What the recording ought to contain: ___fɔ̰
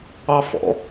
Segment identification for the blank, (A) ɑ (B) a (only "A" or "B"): A